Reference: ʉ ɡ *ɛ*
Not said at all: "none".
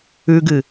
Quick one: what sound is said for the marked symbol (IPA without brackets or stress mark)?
ɨ